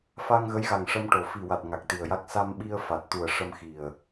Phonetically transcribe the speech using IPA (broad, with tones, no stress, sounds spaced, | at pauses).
f a˧ ŋ ɣ ə˧˥ j ɣ a˨˩ ŋ ʂ ə˧ m ʈ o˨˩ f i˨˩ w a˨˩ t̚ ŋ a˨˩ k̚ t̪ i˨˩ ə̯ j a˦˥ k̚ s a˧ m ɓ i˧ ə̯ f a˨˩ t̚ t̪ u˨˩ ə̯ ʂ ə˧ m x i˨˩ ə̯